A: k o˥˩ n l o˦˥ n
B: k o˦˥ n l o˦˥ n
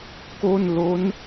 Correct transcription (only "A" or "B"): A